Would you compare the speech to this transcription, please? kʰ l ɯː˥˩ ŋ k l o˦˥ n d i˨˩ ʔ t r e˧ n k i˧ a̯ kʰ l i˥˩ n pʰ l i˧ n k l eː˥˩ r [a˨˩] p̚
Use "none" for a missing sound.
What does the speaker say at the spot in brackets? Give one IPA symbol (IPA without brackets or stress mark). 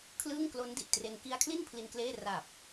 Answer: a˨˩